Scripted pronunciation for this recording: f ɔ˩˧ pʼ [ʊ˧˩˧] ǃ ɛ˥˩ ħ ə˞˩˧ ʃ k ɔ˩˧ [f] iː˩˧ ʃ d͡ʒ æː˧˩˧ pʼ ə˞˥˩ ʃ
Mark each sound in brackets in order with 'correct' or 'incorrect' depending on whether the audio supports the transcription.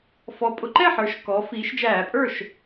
incorrect: ʊ˩˧, correct

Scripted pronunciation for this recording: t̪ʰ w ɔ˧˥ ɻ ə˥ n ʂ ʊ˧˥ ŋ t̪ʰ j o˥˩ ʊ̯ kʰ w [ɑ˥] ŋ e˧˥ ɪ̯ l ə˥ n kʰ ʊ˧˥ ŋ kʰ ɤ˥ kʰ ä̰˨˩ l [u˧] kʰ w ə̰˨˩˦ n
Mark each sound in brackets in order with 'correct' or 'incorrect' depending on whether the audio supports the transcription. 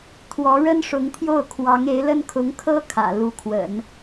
incorrect: ɑ˧˥, incorrect: u˧˥

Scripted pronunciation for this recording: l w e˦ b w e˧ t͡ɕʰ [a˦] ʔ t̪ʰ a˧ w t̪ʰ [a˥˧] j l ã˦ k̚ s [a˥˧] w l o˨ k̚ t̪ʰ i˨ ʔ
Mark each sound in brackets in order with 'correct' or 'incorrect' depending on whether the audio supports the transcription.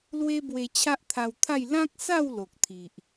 correct, correct, correct

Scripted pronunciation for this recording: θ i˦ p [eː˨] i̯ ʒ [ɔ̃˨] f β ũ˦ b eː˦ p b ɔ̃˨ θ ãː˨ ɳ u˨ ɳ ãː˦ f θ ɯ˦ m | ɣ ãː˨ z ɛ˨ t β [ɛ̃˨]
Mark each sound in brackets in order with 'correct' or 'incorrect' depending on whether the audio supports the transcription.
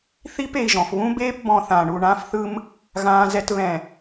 incorrect: e˨, correct, correct

